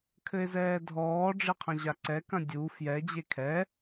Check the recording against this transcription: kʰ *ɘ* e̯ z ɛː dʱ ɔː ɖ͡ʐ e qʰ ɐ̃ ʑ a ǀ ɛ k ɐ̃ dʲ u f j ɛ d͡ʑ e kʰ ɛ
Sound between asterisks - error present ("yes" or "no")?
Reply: no